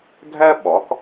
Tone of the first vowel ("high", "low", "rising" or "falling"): high